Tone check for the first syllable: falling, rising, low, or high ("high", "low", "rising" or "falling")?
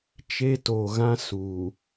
high